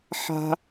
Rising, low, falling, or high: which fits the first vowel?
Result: high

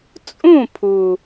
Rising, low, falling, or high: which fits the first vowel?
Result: falling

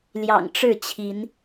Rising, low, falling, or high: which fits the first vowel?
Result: low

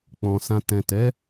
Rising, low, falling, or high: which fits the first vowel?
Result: low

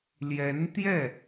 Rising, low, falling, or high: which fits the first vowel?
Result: rising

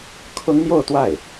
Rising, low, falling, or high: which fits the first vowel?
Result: high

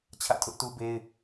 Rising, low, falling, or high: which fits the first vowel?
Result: falling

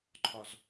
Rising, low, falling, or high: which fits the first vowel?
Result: low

